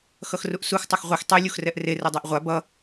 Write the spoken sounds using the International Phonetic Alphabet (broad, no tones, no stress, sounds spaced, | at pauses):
x ʌ x r u ʔ s u x tˤ ʌ x ʁʷ i x tˤ e lʲ u x r ɛ ʔ r e r ɯ dˤ e ʔ ʁʷ a b ʌ